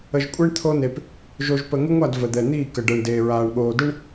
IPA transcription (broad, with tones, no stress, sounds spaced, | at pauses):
ə˨ ʒ kʷʼ ɛ˦ ɳ t̪ʰ o˦ n e˨ p | ʒ o˨ ʒ p ə˨ ŋ ɪ˦ ŋʷ a˦˨ d v ə˨ d̪ ɛ˨ n̪ iː˦˨ k ə˨ ɖ ɛ˨ ɳ d eː˨ ɹ aː˨ ɳ ɠ oː˨ d ɪ˦ ɳ